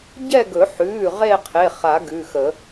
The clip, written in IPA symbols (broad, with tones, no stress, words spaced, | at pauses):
ɟɛ˥˧ɡɵ˨˩˦ ħʉː˩˧˩ ʁe˥˧qʰe˩˧˩χa˨˩˦ ɡʉ˩˧˩xə˨˩˦